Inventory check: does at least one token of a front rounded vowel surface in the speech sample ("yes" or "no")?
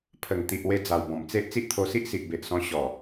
no